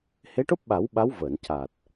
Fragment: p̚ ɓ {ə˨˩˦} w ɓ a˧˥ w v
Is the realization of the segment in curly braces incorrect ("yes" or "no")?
yes